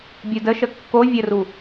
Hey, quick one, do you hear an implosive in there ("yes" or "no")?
no